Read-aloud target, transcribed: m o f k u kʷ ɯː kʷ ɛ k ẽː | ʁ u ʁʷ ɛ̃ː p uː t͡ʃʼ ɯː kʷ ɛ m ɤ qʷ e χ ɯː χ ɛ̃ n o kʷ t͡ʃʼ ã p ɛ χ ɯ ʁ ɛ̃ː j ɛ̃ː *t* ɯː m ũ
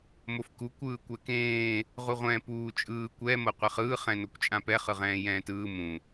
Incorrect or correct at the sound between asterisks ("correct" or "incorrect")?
correct